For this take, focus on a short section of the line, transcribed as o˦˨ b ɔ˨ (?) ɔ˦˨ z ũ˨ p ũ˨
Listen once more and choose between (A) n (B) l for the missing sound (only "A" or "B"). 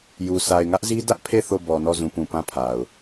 A